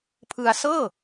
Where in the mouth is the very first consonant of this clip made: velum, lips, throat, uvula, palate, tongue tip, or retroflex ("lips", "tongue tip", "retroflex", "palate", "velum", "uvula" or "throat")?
lips